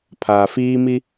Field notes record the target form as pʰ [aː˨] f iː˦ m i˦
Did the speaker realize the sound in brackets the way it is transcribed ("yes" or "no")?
yes